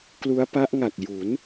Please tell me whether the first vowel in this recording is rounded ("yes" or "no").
yes